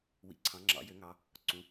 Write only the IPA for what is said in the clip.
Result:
wḭ˩˧ǀʰɑ̃˩˧ŋ͡ǁɑ̰˩˧ jø˩˧ŋɑ˩˧ | ǀũ˩˧

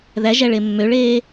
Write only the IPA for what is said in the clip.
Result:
ðæʒæɭe mːøɭeː

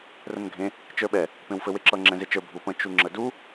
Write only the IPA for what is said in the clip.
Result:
rə̃nɡʱẽ | t͡ʃə˞ɓɛ | pẽwfɘweǁʌ ŋ͡ǁɛ̃zet͡ʃə˞ bʱupə̃ t͡ʃuŋ͡ǁədu

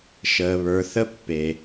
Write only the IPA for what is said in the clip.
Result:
ʃəː˩βə˞˩ θə˥pːe˨

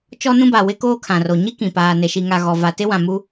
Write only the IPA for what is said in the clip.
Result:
t͡ʃɔ˦nũ˦ba˨ wɪ˦koː˦ kʰã˨ro˨ ɲi˦ kĩ˨ paː˨ne˨ ʃi˨ŋa˨ ɣɔ˨ va˨tɪ˦wã˨mu˦

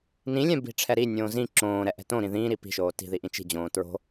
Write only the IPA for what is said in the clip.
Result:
nĩlʲɛ̃ bi̤ʈ͡ʂʰɛɾinʲõː zĩ ǁõːɾɛ ʔɛ̤tõɾĩ ðĩːɾi pi̤ʃoː ti̤ði ʔĩt͡ʃi̤d͡ʑõː tɹo̤

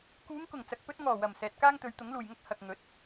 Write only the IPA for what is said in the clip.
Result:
kuː˨˧ŋkʊ˨˩ŋ t͡sɐ˨k̚pɵ˥t̚ ŋɔː˨˩wɐ˨˩m sɛː˨t̚kaː˥ŋt̪ɵ˨˧ɥ t̪ʊ˨˥ŋluː˨jŋɐ˥k̚ hɐ˨k̚ŋɵ˨˥t̚

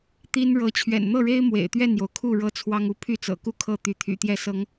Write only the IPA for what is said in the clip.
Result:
t̪i˦n ɻɤ˨˦ t͡ɕʰɥɛ̰˨˩nn̪ɤ˥˨ɻe˦ɪ̯ mwḛ˨˩ɪ̯t̪ɥɛ˥˨njo˩ʊ̯kʰu˥˨ ɻɤ˦t͡sʰwɑ˦ŋu˥˨ pʰy˥˨t͡sɤ̰˨˩ku˦ kʰɤ˥˨t̪y˨˦t̪ʰy̰˨˩t̪jɛ˥˨ sɤ˨˦ŋ

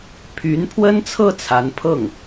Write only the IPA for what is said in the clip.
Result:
pʰy˧˥npʰwə˥nt͡sʰɤ˥˩ t͡sʰa˧˥npʰɤ˥˩ŋ

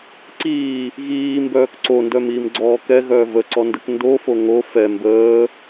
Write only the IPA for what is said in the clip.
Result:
ǀiː | ɣiːmbœːk ǀondœmiːmɡ͡ǀɔː kɛɣœː vəǀɔndək ndofo ŋo fɛ mbəː

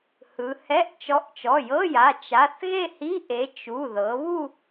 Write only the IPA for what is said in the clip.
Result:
hɯ˩˧hɛ˧˥˧ʔ t͡ʃɔ˨˥ʔt͡ʃɔ˩˧˩jɤ˧˥˧ja˩˧˩ t͡ʃa˩˧˩θɣe˥˧hi˧˥˧ ʔe˨˥ t͡ʃu˩˧˩ ðɤ˩˧βu˥˧

